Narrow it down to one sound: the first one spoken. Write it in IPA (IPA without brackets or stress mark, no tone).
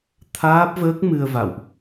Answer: t̪ʰ